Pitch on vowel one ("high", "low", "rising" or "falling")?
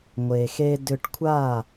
low